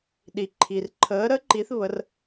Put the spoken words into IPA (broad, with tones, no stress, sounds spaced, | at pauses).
ɗ i˩ ǃʰ i˩ r ǃʰ əː˩˧ ɾ ə˧˥ ǃ i˩˧ θ β ə˩˧ r